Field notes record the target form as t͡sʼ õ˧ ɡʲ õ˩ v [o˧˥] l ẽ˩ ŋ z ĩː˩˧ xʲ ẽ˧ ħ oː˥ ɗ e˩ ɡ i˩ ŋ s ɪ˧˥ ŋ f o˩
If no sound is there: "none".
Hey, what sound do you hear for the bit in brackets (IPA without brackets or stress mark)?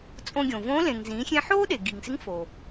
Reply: õ˧˥